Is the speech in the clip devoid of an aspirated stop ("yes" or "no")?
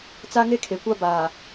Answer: no